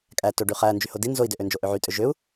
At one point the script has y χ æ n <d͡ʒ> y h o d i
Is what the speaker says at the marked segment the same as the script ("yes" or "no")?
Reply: yes